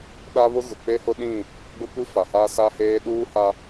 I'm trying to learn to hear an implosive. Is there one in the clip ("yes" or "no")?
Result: yes